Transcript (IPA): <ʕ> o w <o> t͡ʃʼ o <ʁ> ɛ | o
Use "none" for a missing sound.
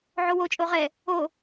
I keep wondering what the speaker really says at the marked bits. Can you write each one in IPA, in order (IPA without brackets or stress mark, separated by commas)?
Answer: ʕ, o, ʁ